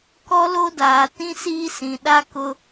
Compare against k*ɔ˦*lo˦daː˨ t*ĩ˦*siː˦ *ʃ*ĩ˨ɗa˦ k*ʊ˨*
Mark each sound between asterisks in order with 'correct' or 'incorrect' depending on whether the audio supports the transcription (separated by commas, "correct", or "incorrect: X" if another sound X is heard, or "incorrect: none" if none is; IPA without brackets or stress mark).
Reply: correct, correct, incorrect: s, incorrect: ʊ˦